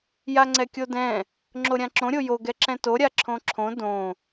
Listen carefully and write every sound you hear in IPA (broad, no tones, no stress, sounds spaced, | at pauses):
j a ŋ͡ǀ ɛ kʲ o d ɛ̃ | ŋ͡ǁ o ɾʲ ã ǁ õ ɾʲ o j o ɡ ɛ ǁ ɛ̃ t o ɾʲ a ǁʰ õ ǁʰ õ d õ